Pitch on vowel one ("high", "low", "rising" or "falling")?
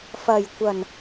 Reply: low